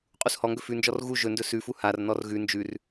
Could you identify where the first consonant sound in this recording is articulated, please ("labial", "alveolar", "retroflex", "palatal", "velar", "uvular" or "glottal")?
uvular